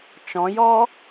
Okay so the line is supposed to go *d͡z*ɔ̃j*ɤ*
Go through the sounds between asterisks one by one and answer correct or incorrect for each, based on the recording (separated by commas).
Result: incorrect, incorrect